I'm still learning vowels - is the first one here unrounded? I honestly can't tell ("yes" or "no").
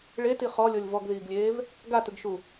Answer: yes